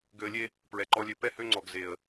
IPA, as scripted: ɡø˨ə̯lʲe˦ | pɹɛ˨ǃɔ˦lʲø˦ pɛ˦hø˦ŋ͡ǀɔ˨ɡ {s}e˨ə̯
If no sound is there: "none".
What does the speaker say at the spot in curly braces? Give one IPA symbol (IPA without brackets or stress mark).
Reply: z